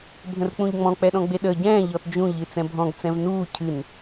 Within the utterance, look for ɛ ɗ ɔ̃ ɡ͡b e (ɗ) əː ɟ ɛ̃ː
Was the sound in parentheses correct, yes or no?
yes